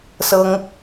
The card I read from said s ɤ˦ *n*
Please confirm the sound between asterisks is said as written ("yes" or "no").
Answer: no